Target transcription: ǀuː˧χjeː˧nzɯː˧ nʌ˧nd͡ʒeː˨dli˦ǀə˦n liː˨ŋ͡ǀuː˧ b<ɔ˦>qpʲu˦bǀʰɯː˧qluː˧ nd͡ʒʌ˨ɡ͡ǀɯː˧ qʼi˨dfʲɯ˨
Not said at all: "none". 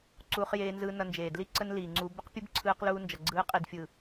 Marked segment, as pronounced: ə˦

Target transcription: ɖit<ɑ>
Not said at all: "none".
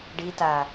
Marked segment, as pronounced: a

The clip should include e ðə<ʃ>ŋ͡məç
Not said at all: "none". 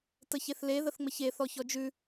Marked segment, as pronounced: θ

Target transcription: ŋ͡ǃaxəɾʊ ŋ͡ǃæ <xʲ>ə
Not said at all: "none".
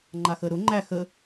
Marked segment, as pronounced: x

